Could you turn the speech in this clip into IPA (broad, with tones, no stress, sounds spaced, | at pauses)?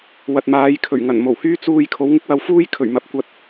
w ɐ˨ t̚ m aː˨˧ j kʰ ɵ˨˩ ɥ ŋ ɐ˨˩ n m o˨˩ w h yː˥ t͡s uː˧ j kʰ o˨˥ w ŋ ɪ˥ k̚ w ɐ˧ w f uː˥ j kʰ ɵ˨˩ ɥ m ɐ˨˥ p̚ kʷ ɐ˧ t̚